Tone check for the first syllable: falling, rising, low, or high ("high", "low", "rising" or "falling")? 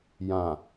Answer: low